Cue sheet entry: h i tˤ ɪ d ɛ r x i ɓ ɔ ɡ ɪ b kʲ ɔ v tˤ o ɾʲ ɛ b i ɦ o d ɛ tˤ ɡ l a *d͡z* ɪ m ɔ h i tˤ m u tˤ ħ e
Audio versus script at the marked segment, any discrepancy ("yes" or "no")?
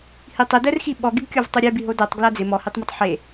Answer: no